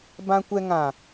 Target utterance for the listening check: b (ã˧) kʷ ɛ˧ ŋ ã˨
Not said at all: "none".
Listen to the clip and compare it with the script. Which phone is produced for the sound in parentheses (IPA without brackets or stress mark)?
ã˧